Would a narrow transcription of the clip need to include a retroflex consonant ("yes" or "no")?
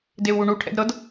yes